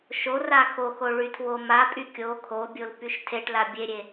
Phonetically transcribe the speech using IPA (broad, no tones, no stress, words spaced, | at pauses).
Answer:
ʃora xoxo ɭytʰwomapʼy kʲo kʰobʲol pyʃtʰeʈla bʲeɾʲe